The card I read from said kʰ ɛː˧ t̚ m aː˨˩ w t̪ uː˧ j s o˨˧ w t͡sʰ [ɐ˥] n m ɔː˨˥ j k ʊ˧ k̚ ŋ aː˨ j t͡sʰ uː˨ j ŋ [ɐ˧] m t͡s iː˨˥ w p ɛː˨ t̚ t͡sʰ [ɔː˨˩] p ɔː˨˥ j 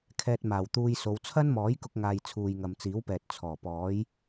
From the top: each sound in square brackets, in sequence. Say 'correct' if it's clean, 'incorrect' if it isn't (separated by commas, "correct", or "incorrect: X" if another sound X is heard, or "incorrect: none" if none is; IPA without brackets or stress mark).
correct, incorrect: ɐ˨, correct